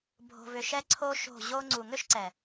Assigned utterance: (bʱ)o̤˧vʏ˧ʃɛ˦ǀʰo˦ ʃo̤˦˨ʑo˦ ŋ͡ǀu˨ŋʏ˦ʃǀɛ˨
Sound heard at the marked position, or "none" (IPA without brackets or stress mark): bʱ